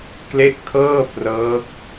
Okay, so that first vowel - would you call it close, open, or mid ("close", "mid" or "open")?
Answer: mid